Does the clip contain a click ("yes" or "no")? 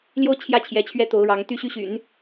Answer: no